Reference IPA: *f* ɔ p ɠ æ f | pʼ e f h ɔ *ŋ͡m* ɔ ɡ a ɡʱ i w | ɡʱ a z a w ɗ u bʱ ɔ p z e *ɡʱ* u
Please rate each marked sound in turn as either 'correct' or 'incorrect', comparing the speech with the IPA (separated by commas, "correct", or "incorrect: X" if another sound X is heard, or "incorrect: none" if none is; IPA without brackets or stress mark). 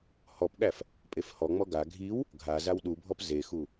incorrect: h, correct, incorrect: x